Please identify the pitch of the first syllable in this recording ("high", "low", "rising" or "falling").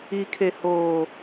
low